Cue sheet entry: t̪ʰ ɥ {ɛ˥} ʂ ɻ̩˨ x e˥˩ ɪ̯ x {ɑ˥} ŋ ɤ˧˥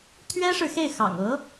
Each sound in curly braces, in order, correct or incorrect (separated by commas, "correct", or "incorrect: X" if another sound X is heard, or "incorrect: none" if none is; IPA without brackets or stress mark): correct, incorrect: ɑ̰˨˩